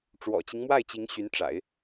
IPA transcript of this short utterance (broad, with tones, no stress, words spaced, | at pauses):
ʈ͡ʂwɔ̰˨˩t͡ɕi˦ŋmwa˥˩ɪ̯t͡ɕi˧˥ŋ ɕy˧˥nʈ͡ʂa̰˨˩˦ɪ̯